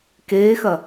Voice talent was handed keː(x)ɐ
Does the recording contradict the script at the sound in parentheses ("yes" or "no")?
no